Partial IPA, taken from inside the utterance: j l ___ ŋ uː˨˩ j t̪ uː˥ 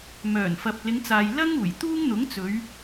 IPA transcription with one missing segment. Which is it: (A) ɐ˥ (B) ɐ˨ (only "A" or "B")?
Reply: A